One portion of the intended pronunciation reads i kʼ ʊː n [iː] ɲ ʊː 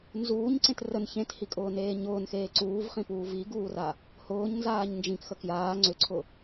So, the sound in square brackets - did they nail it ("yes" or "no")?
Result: no